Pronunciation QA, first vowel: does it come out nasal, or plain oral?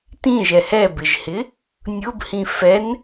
nasal